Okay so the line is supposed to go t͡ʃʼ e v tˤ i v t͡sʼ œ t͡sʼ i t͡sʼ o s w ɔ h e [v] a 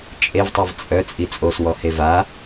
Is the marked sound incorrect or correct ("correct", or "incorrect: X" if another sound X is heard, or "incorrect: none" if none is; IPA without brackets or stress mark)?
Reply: correct